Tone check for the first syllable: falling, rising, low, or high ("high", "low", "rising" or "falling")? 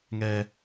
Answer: high